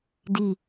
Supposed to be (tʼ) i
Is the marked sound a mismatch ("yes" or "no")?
yes